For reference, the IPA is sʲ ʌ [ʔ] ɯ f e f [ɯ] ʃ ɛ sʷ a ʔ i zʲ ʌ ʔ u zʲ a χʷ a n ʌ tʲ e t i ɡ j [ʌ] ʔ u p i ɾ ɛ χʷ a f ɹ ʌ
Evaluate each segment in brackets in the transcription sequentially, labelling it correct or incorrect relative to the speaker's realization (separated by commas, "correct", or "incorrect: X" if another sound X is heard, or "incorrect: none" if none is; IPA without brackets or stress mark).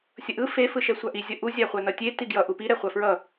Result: correct, correct, correct